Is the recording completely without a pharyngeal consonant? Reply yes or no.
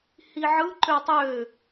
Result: no